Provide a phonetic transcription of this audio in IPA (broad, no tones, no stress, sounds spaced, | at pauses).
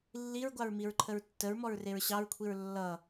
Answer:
lː i ɹ ɡʷ ɑ ɹ m i ɹ ǃʰ ə ɹ tː ə ɹ m ɔ ɹ r e ɹ ɕ ɑ ɹ kʷʰ i ɹ lː ʌ